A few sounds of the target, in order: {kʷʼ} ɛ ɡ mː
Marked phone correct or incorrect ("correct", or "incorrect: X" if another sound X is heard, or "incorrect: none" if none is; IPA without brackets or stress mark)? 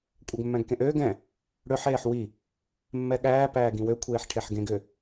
correct